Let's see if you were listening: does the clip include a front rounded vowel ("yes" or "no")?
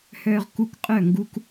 yes